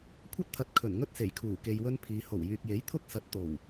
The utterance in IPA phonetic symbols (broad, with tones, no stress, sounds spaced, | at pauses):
kʷʰ ɐ˥ t̚ t̪ʰ ɐ˨˥ t̚ kʰ ɵ˨˩ n ŋ ɵ˥ t̚ s e˨˩ j kʰ uː˨˩ k e˨ j w ɵ˧ n pʰ iː˨˧ h o˨˩ w j yː˨ k̚ j e˨˥ j t̪ʰ ʊ˥ k̚ s ɐ˨˥ t̚ t̪ o˨˩ w